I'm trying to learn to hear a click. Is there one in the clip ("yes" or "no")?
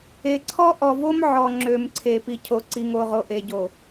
yes